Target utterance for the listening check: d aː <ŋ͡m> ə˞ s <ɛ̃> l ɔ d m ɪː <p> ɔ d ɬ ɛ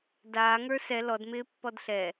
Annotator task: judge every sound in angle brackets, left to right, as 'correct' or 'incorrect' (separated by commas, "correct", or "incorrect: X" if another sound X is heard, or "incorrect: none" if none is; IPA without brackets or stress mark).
incorrect: ŋ, incorrect: ɛ, incorrect: pː